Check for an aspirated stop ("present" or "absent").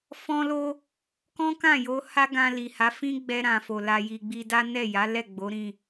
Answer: absent